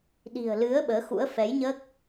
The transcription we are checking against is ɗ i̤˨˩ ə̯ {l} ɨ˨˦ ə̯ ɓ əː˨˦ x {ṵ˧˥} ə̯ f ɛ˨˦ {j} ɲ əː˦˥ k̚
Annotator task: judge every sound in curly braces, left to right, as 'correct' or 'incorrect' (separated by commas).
correct, correct, correct